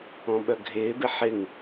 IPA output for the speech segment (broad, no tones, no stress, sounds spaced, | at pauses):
ɔ̃ ɓ œ ɡʱ ɪː b ɪ ħ ɪ ŋ